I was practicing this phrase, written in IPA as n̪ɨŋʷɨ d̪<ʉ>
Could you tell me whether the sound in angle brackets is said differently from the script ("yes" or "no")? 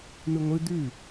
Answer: no